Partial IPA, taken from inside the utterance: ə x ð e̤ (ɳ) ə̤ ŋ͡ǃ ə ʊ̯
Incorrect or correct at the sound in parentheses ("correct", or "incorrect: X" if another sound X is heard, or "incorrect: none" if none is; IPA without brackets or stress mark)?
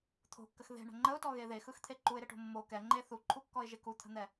correct